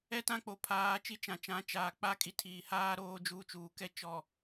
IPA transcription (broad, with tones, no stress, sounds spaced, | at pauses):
ɛ˦ t ã˦ k͡p o˨ pʰ aː˨˦ t͡ʃ i˦ t͡ʃ ã˨ t͡ʃ ã˨˦ t͡ʃ aː˨ k͡p a˦ kʼ i˨ tʰ iː˨ h aː˦ ɾ oː˦ d͡ʒ uː˦ t͡ʃ uː˨ k ɛ˦ t͡ʃ ɔ˨